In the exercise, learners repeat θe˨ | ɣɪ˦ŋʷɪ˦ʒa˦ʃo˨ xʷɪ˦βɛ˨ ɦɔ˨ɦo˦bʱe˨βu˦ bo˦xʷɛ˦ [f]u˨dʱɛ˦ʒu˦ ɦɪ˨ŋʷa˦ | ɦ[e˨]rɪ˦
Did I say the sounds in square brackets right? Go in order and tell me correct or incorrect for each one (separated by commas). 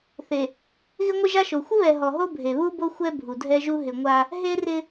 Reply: incorrect, incorrect